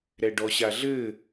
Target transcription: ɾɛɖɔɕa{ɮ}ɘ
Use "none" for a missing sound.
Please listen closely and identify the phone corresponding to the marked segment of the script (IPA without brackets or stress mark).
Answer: ɮ